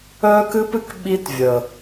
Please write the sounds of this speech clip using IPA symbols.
œ˦ k ɨ˦ p ɨ˦ k ɓ i˦ t vʲ ə˨

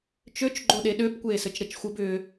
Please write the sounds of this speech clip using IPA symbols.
t͡ʃ ø t͡ʃ ɡ͡ǃ o ɗ e ɗ ø b kʷ eː s ɘ t͡ʃ ɾ ɘ t͡ʃ xʷ ɘ b ʏː

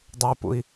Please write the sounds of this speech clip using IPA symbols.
dˤ ɨ p ṵ i̯

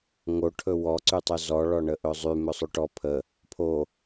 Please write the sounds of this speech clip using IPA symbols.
ŋ o ʈʰ ɵ w ɔ ǀ y tˤ ɵ z ɔ ɭ ɔ ɳ ə ʔ ɵ zˤ y m ɵ sˤ y ʈ ɔ pʰ ə | pʰ o

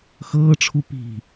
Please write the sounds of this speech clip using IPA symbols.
x ɤː ʈ͡ʂʰ u p i̤

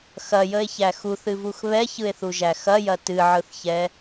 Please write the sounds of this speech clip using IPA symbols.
x ɐ j ə e̯ ç æ x u θ ɨ v u x β ɛ ç ɯ e̯ θ u ʒ æ x ɐ j ɐ t ɨ ʕ ɯ θ ç ɛ

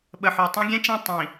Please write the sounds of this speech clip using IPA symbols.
ɓ ə˨ ħ ø˨ tˤ ɛ̃˦ ɡʲ ɛ̃˦ t͡ʃ ẽ˦˨ tˤ ĩ˨

